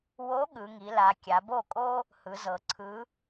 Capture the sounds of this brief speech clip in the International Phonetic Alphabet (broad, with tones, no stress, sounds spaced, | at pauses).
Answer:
w o˧˥ ɠ ɯ˩˧ ŋ i˩˧ l a˩˧ kʲ a˩˧ b o˥˩ kʼ o˥ | h ɯ˩˧ z ɤ˩˧ ǀʰ ɯ˧˥